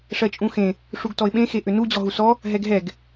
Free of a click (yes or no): yes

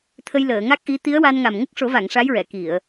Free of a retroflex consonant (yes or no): no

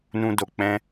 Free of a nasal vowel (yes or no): no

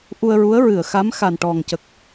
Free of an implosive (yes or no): yes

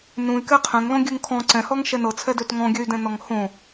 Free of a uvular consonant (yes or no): no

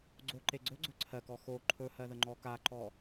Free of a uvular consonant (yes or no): yes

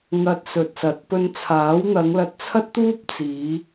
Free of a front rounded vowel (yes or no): yes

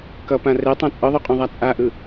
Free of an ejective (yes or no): no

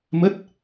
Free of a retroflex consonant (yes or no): yes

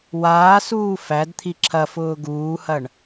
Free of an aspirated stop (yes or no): no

